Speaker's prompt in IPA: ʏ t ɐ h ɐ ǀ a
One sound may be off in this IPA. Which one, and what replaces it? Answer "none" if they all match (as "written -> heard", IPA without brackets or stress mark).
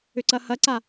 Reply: t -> ǀ